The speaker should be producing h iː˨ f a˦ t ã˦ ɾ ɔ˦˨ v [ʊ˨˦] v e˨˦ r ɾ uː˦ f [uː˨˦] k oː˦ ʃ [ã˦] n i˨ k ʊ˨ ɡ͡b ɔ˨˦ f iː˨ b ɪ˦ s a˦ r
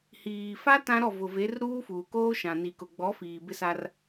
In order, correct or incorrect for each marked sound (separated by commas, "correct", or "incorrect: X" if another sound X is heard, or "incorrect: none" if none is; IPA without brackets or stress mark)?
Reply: incorrect: ʊ˨, incorrect: uː˨, incorrect: ã˨